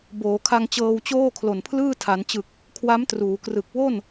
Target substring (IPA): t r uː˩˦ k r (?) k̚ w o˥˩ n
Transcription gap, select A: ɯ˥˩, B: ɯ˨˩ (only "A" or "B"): B